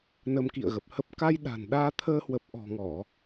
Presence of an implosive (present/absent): present